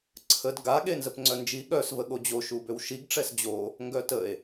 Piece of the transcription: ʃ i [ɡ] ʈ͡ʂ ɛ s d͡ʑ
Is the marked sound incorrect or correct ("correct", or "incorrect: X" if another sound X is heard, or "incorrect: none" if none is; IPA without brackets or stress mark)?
correct